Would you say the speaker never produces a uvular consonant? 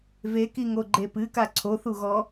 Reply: yes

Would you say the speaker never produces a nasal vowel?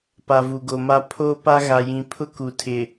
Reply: no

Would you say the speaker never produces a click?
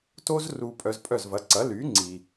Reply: no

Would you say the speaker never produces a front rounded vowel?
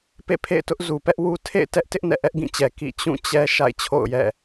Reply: yes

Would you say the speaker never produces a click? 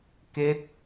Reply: yes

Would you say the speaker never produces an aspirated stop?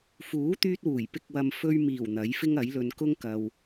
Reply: yes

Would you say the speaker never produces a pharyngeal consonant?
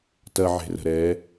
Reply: no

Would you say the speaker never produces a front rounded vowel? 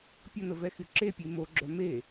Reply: no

